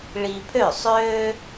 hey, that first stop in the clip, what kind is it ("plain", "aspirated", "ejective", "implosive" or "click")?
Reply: aspirated